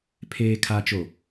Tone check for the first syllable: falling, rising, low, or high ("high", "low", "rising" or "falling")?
low